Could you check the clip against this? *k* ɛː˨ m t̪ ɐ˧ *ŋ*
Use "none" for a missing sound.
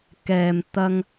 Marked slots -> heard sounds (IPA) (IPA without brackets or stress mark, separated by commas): k, ŋ